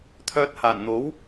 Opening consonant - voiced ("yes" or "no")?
no